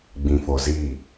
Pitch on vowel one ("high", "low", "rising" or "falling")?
low